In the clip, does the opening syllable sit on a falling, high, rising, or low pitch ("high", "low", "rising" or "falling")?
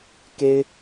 high